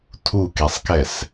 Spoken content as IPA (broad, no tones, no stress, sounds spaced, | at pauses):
tʰ u k e sˤ k ɛ s